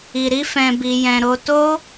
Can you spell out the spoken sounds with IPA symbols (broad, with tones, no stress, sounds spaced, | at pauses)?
i˨ ɾ i˧ f ɛ̃˨ b i˨ j ɛ̃˨ ɾ o˧ t o˦